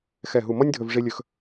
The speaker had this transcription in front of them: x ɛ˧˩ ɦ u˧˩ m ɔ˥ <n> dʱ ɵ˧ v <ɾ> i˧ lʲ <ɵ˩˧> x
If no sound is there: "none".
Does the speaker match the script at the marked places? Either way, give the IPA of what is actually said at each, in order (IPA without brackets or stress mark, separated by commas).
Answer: nʲ, ʐ, ɵ˧